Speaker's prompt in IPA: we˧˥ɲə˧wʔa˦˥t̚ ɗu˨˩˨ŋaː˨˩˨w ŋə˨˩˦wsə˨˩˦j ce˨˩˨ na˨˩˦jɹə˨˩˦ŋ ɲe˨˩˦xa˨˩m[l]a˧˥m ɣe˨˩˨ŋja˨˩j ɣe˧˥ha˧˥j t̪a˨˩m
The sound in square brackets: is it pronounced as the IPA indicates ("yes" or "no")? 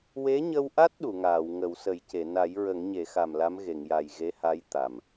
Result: yes